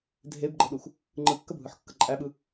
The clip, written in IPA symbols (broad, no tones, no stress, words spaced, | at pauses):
dʱebɡ͡ǃəɗux | ŋ͡ǃɯkːəbʱɯħkːə ǃʼæɓɯ